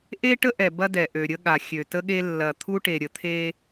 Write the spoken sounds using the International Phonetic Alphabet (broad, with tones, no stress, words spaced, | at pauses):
ʔe˦ʈə˦ʔɛ˨ bɐ˦dɛ˨ ʔø˨ɾʲə˦ɠa˨ xʲø˨tə˦ɠe˦ lːɐ˨t̪ʰu˦ʈe˨ɾʲə˨ t̪ʰe˦